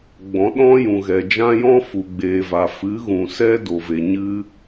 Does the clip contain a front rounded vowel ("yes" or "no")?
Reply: no